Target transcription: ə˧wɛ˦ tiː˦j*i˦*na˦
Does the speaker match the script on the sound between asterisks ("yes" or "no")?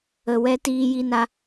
yes